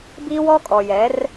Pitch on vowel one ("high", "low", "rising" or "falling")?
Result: high